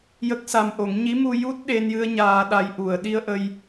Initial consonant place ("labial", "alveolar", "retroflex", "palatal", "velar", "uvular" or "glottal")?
palatal